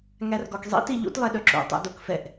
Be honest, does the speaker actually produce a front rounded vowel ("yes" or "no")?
yes